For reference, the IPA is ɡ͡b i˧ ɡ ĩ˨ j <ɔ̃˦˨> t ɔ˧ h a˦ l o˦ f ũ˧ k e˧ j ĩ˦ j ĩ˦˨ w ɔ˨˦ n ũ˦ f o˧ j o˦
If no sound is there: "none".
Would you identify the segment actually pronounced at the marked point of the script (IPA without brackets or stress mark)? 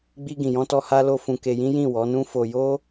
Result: ɔ̃˧